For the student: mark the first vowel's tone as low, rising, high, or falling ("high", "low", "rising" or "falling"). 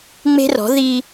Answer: high